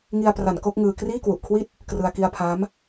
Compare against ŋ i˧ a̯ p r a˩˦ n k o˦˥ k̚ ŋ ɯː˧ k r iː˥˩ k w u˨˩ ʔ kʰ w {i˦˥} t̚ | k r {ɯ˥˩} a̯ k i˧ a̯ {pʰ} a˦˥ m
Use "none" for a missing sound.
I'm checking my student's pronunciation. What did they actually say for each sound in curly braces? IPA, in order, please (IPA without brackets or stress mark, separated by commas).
i˥˩, ɯ˧, pʰ